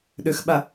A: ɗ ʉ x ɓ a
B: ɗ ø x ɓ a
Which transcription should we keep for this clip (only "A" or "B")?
B